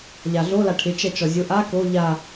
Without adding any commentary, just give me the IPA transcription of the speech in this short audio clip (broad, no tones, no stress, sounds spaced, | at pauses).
ʎ a ɮ o l a ʈʰ ɪ t͡ʃ ɛ t͡ʃ ɔ zʲ ʊ ʔ a k o ʎ a